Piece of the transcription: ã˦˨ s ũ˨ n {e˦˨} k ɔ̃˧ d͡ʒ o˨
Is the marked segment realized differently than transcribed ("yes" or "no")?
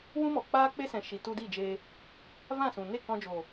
no